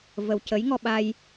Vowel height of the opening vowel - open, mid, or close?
mid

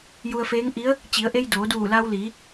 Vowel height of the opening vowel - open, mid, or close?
close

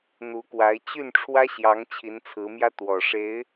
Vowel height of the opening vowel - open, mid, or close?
close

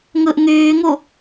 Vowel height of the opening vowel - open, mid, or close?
close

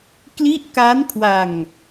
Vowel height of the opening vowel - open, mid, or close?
close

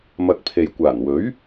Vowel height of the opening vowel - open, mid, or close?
open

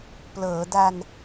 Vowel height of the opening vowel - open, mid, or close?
mid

